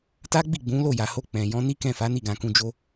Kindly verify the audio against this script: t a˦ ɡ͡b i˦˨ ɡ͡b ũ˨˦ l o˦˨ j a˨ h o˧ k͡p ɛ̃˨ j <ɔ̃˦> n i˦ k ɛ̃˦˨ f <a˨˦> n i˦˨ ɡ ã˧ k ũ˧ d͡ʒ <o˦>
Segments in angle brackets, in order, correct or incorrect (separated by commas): incorrect, correct, incorrect